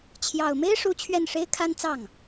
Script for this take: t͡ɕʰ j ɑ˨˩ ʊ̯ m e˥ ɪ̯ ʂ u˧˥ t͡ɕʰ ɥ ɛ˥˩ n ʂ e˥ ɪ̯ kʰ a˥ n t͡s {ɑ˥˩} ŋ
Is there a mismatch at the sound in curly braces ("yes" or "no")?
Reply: no